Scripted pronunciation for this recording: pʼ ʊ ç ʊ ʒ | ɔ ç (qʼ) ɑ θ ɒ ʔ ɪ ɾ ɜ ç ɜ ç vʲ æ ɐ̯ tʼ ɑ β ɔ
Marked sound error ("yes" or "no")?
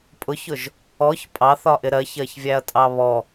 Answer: yes